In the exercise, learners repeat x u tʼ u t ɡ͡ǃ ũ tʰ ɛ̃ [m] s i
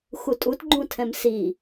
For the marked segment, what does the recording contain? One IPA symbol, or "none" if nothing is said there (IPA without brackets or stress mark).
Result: m